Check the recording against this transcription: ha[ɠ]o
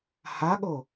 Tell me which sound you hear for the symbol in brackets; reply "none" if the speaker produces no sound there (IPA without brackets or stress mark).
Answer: ɠ